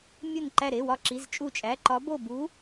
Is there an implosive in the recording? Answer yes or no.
no